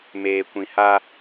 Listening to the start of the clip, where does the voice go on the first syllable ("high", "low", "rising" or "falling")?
low